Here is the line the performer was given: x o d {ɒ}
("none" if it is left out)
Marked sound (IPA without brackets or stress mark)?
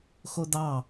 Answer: ɑ